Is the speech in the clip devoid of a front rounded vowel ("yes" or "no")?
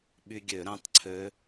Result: no